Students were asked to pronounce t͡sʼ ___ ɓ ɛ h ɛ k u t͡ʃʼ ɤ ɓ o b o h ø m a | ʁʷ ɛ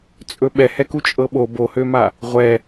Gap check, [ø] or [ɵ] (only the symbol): ɵ